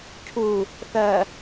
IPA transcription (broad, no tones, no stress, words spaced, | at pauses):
cʰu | θɜ